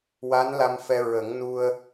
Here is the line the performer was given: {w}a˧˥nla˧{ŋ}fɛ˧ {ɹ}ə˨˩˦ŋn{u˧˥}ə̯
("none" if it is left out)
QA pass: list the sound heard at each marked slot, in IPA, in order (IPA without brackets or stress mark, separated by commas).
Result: w, m, ɹ, u˧